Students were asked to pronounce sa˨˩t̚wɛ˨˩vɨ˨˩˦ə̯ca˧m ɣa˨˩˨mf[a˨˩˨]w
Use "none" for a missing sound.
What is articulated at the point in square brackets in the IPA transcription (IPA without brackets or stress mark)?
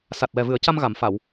a˨˩˨